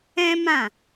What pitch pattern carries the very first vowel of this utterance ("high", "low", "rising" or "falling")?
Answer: high